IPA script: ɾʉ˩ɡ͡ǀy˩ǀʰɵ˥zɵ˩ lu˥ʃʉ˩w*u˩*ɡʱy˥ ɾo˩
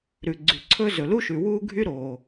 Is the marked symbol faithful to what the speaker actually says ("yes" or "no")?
no